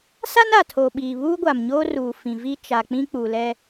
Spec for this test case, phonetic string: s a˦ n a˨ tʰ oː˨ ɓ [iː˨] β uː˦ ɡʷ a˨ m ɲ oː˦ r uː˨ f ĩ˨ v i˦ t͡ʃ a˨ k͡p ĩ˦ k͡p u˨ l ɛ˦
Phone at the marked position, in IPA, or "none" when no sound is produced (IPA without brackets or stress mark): iː˨